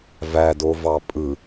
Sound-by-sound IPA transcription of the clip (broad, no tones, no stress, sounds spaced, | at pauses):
v æ d o v ɑ pʼ ɯ